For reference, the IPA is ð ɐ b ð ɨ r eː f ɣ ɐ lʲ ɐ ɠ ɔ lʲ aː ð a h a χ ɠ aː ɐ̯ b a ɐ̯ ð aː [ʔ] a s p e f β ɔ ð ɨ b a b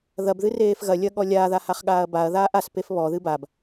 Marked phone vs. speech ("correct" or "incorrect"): correct